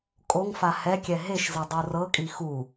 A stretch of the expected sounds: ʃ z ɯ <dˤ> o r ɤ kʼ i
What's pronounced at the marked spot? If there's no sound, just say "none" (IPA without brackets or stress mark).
dˤ